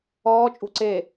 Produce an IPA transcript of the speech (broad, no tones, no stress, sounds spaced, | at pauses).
ɔː t͡ʃʼ ṳ ǀ e